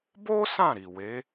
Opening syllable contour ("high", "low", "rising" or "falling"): high